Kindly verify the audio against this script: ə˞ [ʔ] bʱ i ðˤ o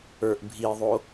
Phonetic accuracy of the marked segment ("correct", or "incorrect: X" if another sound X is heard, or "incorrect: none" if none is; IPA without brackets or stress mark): correct